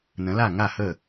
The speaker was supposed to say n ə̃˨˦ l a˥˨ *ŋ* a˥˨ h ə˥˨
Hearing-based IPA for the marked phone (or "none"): ŋ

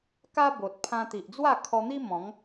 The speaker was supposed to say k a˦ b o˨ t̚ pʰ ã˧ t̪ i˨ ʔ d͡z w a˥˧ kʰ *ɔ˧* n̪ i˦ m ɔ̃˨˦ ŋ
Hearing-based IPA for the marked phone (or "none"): ɔ˧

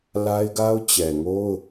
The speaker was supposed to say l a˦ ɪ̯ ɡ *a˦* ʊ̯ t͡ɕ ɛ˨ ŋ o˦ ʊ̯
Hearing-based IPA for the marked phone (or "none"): a˦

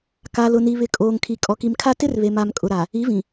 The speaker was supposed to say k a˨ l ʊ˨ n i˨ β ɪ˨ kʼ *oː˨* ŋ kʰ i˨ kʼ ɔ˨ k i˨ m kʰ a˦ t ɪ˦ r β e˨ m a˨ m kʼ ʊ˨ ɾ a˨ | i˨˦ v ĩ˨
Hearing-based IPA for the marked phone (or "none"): oː˨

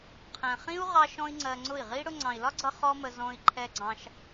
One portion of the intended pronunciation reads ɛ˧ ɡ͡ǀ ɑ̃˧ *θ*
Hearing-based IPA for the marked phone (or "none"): ʃ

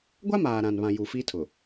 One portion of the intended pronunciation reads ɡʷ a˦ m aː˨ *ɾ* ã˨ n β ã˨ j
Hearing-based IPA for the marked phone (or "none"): ɾ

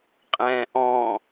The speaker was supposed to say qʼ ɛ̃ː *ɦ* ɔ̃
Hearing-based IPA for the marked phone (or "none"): ʔ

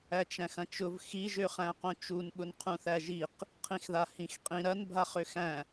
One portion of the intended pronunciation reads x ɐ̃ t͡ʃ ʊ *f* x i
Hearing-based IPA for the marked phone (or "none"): v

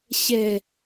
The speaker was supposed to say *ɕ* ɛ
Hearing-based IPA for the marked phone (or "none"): ɕ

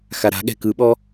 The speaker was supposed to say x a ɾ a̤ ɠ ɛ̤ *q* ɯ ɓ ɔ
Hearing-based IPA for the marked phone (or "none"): k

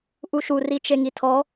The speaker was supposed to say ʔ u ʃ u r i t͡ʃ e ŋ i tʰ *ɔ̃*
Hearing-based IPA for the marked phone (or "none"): ɔ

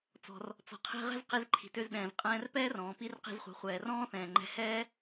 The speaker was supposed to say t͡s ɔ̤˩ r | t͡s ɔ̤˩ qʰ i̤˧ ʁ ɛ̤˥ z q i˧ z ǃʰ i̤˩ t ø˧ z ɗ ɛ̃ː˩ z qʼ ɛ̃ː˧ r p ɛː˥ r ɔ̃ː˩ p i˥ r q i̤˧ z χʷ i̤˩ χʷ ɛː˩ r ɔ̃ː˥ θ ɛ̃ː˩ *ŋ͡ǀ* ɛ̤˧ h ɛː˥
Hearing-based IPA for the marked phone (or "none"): ŋ͡ǃ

